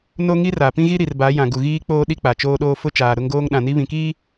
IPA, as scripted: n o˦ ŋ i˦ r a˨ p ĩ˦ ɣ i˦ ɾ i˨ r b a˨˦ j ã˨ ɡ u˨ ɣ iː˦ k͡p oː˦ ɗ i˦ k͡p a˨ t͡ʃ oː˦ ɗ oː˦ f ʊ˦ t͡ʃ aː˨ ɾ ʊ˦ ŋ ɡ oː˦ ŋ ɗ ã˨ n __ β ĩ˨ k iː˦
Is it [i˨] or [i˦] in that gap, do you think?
i˦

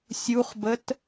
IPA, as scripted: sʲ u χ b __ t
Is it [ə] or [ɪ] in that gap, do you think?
ə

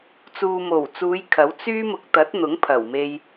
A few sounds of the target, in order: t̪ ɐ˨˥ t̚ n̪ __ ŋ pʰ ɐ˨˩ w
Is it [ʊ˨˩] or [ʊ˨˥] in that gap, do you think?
ʊ˨˥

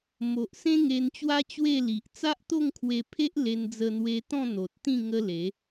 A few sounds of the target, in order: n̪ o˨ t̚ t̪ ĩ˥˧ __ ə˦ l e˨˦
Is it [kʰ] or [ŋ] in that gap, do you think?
ŋ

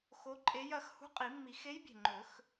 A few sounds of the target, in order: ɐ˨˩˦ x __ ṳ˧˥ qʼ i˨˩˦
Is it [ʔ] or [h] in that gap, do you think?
h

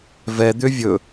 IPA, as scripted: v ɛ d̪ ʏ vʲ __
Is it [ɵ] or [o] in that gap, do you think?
ɵ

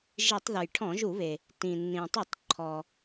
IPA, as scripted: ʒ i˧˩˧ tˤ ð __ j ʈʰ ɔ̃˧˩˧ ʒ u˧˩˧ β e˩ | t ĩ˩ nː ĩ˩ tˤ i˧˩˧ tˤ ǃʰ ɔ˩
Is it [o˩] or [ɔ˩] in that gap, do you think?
o˩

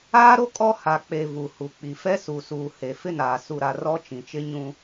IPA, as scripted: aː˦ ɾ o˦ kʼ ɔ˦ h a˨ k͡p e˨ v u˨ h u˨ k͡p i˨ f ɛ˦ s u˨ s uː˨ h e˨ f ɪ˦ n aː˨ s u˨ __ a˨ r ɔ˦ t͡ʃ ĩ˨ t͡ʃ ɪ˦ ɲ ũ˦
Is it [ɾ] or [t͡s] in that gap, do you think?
ɾ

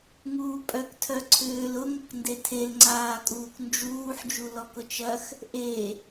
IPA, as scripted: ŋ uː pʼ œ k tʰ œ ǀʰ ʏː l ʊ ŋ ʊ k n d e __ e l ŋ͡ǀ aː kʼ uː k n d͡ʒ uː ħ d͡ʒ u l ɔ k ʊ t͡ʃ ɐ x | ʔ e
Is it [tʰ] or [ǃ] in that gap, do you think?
tʰ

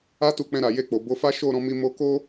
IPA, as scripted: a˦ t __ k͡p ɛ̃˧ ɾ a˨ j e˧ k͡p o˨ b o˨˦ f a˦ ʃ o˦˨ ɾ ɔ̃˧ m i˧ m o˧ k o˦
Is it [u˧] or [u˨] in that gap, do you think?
u˧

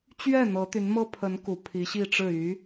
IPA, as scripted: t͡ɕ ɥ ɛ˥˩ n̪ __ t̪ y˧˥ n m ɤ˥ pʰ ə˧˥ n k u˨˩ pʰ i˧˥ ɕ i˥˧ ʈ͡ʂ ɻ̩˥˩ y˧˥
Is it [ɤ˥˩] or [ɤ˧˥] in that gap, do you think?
ɤ˧˥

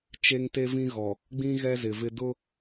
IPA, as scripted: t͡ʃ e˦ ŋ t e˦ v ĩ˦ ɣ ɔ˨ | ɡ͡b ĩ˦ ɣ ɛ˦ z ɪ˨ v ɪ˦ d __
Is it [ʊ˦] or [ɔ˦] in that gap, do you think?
ʊ˦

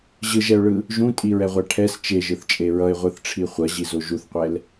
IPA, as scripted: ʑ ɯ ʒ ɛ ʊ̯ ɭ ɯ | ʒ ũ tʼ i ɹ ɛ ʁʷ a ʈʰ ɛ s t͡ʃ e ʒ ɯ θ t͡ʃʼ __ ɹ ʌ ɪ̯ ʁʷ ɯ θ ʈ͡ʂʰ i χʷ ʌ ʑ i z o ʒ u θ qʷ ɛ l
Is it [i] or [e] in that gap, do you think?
e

